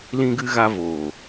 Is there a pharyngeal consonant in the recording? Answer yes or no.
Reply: no